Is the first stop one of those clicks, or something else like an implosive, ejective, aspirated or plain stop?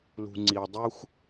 click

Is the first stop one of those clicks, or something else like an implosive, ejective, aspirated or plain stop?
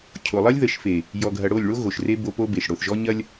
aspirated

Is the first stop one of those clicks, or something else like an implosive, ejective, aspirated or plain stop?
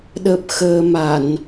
implosive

